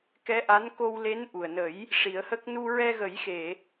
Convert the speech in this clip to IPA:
k ɛ˧˥ ʔ a˧˥ n k o˧ w l e˧˥ n ʔ u˨˩ ə̯ n ə˨˩˦ j | ʂ i˨˩˦ ə̯ h ə˦˥ k̚ n u˧ ɹ ɛ˧ ɣ ə˨˩˦ j x e˨˩˨

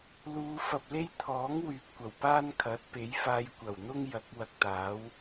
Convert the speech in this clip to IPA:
l uː˨˧ f ɐ˨ p̚ l e˥ j t̪ʰ ɔː˨˥ ŋ w yː˨ p̚ kʷ ɐ˨˩ w p aː˥ n kʰ ɐ˨˥ t̚ p e˨˥ j f aː˧ j kʷ ɐ˨˩ w n̪ ʊ˥ ŋ j ɐ˨˥ k̚ w ɐ˧ k̚ t̪ aː˨˥ w

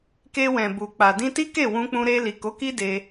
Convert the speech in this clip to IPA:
k e˧ w ɛ̃˨ b u˨ k͡p a˨ d ĩ˧ t i˦ k e˦˨ w ũ˧ k͡p ũ˧ ɾ e˧ l i˨ k o˨˦ k i˦ d e˧

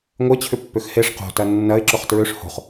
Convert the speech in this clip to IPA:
ŋʷ e t͡ɕʰ ʏ pː ø x h e ʂ q o̤ t ɐ nː ɐ ɪ̯ ǁ ʊ χ t ɹ ø ʂ h o̤ χ

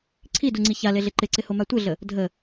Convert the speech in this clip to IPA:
ǀʰ i d u ŋ͡ǀ i ç a l e ɮ ɪ ǃ ɪ ǀ ɪ h o m a tʷ ɪ ɮ ə | dʱ ə

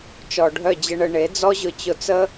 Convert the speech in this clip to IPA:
t͡ʃ ɔ˨ ɖʱ œ˦˨ d͡ʑ ə˧ ɳ ə˧ ɳ e˨˦ d͡z ɔ˦ ʑ ʊ˧ t͡ɕ ʊ˧ t͡s ə˦

